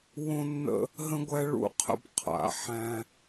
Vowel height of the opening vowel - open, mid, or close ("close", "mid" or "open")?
mid